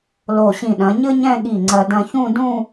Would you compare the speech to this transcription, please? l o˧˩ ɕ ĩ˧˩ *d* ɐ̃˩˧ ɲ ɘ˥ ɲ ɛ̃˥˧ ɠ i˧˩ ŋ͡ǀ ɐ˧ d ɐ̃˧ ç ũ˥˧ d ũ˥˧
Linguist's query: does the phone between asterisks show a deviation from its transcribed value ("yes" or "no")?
yes